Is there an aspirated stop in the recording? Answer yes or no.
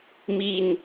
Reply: no